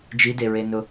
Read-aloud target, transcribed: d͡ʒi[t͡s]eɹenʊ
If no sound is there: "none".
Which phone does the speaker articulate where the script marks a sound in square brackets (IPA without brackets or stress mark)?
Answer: d